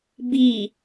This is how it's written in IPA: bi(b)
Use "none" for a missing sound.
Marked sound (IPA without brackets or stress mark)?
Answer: none